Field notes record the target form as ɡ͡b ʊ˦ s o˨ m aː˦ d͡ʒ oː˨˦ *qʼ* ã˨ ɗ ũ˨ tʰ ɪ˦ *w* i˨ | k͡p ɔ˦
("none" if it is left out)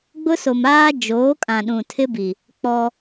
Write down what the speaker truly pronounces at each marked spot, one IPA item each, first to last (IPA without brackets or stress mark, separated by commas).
kʼ, b